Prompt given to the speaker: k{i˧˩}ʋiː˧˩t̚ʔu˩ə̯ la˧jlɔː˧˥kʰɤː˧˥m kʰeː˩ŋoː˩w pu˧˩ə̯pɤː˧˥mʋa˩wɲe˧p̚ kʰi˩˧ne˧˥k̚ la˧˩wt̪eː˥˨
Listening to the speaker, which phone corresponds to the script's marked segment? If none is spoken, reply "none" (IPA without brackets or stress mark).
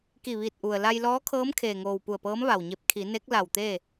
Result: i˧˩